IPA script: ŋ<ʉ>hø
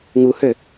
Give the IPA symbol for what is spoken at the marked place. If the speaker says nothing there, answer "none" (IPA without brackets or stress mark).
u